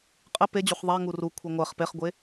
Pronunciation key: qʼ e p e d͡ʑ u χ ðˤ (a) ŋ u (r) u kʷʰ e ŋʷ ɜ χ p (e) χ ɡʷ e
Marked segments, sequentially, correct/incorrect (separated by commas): correct, correct, correct